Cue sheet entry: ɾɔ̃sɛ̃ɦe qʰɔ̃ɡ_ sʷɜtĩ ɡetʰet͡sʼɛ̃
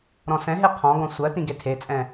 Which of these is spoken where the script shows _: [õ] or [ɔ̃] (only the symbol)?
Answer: ɔ̃